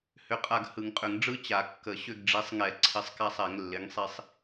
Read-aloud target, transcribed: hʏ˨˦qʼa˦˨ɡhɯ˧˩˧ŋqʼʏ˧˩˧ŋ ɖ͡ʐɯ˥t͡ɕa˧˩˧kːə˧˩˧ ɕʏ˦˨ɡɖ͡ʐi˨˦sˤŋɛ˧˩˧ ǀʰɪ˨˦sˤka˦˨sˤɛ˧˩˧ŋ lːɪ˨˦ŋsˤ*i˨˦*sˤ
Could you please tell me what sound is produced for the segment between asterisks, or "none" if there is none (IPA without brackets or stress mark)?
i˦˨